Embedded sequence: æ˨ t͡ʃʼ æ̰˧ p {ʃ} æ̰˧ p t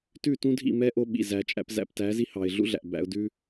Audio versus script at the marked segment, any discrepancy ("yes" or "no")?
yes